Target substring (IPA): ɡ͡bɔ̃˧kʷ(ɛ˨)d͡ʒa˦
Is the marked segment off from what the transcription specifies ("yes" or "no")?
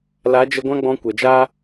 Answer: no